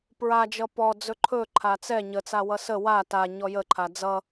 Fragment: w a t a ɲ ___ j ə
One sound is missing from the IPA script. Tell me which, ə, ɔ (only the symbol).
ɔ